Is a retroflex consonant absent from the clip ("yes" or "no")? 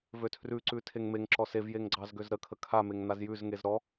yes